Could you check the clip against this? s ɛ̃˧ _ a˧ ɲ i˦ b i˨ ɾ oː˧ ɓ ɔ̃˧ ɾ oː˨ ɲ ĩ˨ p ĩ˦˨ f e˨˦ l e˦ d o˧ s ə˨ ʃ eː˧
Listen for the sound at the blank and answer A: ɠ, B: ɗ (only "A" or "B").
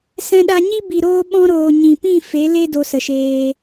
B